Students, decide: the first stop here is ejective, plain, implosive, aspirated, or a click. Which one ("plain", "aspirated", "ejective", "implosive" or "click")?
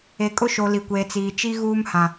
ejective